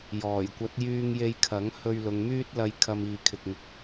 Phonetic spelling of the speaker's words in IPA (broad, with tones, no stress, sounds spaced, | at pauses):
j ɔː˨˩ j kʷ ɐ˨˥ t̚ j yː˧ ŋ j e˧ j kʰ ɐ˨˥ ŋ h ɵ˧ ɥ l ʊ˨˧ ŋ m yː˥ t̚ l ɐ˧ j kʰ ɐ˧ m iː˨ kʰ ɪ˨ k̚ ŋ ɪ˧ k̚